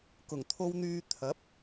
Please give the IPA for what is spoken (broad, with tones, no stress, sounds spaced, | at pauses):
k ʊ˨˩ ŋ t̪ʰ o˧ w n̪ yː˧ t̪ʰ ɐ˨˥ p̚